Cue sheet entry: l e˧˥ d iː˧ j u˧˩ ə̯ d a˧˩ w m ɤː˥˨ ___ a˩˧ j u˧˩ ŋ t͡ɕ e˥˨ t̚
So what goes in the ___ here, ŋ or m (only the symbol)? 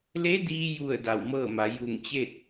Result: m